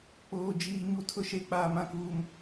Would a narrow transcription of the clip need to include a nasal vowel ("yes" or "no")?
yes